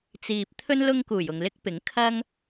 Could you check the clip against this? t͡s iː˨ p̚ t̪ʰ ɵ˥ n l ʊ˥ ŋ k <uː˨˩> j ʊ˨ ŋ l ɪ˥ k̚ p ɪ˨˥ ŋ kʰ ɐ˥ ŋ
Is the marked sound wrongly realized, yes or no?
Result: no